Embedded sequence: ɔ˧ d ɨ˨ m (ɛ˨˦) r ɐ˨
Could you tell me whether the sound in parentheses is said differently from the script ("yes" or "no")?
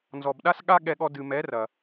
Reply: no